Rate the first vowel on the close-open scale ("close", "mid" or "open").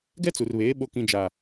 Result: mid